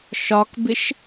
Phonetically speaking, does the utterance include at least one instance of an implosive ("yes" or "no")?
no